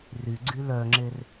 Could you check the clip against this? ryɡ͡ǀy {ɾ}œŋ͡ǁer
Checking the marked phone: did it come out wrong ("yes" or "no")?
yes